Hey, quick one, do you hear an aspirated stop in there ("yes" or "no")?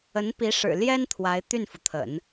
yes